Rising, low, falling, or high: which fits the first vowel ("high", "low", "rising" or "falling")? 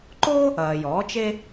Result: high